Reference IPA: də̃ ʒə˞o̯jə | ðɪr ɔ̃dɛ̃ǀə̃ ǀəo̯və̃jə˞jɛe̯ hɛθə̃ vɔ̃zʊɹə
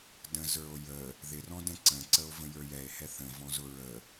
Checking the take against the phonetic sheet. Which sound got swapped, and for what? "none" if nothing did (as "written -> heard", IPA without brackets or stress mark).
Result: ʒ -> z